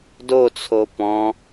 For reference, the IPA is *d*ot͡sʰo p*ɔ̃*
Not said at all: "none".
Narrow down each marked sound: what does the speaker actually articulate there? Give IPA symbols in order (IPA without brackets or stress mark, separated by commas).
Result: d, ɔ̃